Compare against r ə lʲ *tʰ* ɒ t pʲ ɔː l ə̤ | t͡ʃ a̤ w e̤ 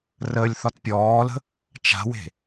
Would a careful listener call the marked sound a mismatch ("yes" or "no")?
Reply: yes